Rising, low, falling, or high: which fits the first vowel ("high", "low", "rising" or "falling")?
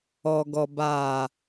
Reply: low